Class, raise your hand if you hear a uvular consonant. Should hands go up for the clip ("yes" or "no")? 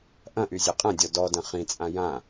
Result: yes